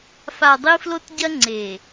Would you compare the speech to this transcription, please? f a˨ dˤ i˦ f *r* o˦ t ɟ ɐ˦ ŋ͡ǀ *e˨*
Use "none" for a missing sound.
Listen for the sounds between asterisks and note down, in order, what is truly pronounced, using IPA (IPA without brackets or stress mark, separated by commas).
l, e˨